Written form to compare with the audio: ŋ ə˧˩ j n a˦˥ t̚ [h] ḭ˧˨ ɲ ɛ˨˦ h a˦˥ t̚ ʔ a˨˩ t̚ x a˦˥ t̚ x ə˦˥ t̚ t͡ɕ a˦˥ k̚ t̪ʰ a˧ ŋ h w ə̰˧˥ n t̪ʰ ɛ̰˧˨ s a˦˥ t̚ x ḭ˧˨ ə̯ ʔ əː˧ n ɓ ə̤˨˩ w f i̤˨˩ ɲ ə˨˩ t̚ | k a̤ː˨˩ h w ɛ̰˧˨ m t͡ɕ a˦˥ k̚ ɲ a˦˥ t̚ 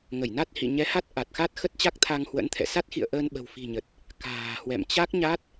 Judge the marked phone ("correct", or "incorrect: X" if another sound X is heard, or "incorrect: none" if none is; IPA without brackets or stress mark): correct